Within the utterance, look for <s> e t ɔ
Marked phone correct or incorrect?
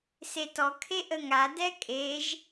correct